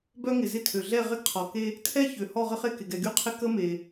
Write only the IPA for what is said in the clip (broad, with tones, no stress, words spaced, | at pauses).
bœ˦ŋɪ˩zɪ˦˨tʰø˩ ɮɛ˦˨ ʁɪ˦ɡqʰɔ˩ke˦ | tʰɛ˦çø˩ hɔ˦˨ʁə˦χe˦˨kɪ˩ ɡɛ˩ɡy˦˨qʰɪ˦˨ kə˦me˩